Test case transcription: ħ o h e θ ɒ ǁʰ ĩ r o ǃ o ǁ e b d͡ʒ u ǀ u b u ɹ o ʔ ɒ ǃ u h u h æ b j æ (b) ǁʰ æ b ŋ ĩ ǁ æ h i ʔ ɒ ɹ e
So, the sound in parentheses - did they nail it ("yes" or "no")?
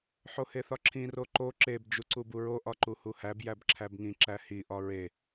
yes